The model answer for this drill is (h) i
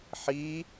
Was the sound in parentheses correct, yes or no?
no